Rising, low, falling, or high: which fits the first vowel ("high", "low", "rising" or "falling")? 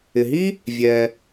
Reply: low